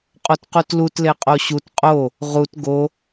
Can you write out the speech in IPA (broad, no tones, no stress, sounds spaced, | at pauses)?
qʼ o t q u t l u t l e qʼ o ɕ u t qʼ o | ʁ u t ɡ o